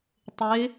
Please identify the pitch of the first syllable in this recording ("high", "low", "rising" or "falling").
rising